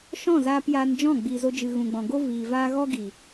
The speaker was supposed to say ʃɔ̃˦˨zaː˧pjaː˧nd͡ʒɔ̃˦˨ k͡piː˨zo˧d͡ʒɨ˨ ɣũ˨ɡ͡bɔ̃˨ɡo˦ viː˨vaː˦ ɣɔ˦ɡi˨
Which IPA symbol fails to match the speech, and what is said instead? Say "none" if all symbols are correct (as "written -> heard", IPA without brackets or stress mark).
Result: k͡p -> ɡ͡b